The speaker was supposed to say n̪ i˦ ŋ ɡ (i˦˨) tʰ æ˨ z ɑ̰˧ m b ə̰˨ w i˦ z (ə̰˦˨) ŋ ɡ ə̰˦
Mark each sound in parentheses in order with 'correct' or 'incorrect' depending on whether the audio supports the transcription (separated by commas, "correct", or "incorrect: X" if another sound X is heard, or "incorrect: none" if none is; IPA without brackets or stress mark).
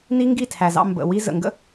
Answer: correct, incorrect: ə̰˨